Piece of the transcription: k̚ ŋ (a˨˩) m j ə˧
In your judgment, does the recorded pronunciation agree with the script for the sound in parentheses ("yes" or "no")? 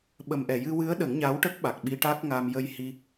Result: no